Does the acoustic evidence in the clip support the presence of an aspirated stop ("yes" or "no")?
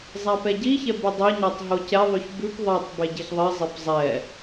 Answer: no